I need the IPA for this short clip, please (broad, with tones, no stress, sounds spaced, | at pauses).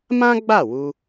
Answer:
m ã˦ ɡ͡b a˦˨ w u˧